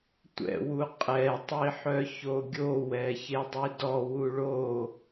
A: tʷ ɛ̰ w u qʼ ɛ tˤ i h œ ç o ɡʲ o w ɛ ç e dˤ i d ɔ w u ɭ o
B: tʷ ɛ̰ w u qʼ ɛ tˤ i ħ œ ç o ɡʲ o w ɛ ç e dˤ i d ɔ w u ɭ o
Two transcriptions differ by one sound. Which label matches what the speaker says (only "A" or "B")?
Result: B